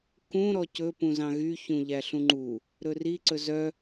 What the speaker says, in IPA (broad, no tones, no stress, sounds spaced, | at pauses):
k ũ ɾ ɔ c ɵ p ũ z ɑ̃ ɣ y ç ũ ʎ æ ɬ ũ ŋ͡ǃ u | ɾ ɵ r i ǀ ɵ z œ